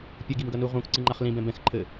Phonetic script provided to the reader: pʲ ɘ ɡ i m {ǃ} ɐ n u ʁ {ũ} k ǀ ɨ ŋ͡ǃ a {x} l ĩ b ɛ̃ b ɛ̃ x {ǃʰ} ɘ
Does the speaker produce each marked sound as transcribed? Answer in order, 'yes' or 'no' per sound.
no, yes, no, yes

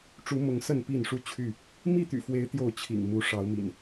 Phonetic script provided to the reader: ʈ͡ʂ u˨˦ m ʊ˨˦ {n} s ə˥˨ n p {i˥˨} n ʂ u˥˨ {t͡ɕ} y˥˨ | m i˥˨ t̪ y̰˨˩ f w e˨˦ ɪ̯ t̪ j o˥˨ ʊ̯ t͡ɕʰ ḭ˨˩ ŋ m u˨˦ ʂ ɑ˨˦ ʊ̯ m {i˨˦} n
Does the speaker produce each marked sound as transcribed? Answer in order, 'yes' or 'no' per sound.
no, yes, no, no

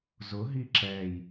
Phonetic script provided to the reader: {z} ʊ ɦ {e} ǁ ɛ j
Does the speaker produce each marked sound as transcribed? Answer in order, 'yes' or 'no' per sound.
yes, no

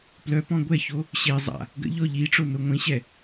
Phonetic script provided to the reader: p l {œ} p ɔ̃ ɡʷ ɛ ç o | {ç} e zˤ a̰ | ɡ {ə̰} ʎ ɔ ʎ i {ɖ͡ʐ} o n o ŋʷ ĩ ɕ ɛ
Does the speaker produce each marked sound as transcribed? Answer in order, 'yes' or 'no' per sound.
yes, no, yes, no

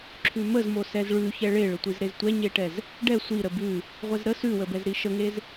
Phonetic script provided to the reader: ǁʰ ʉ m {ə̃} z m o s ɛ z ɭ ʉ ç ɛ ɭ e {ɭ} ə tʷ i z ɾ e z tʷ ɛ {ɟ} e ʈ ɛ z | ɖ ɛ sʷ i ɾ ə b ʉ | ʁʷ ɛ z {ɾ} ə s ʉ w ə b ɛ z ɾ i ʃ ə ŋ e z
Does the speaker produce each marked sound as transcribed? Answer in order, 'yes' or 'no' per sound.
no, yes, no, yes

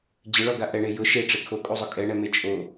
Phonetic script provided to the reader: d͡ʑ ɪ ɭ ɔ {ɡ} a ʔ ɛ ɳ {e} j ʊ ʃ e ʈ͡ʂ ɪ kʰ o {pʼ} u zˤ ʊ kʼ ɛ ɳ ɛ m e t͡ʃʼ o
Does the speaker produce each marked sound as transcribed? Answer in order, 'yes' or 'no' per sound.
yes, yes, no

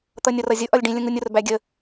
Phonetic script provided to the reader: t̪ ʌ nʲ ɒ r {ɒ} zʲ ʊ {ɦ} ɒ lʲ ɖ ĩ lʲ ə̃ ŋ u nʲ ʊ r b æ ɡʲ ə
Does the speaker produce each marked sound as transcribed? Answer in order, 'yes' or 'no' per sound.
no, no

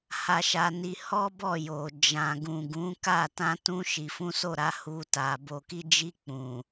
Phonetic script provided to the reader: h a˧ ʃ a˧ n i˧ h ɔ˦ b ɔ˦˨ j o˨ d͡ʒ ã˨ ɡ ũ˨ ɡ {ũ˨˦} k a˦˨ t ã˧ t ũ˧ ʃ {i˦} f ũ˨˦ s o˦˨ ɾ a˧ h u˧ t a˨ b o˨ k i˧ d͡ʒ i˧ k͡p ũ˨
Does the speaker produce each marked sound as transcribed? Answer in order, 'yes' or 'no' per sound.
yes, no

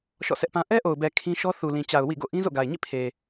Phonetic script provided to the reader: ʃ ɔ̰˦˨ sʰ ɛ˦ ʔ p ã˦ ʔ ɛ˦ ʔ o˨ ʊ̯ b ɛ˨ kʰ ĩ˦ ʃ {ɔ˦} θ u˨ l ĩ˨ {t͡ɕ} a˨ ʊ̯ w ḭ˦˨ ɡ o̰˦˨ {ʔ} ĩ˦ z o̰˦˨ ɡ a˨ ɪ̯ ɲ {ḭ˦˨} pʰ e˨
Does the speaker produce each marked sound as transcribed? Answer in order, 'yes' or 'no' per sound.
yes, yes, yes, yes

